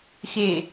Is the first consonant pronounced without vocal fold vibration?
yes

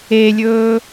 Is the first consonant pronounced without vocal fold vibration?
no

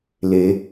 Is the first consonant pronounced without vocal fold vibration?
no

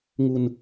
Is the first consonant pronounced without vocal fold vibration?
no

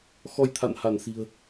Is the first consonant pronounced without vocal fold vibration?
yes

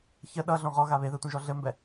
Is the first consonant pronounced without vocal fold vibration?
yes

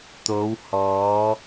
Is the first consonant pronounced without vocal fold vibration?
yes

